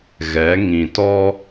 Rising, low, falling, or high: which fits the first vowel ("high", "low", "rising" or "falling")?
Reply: rising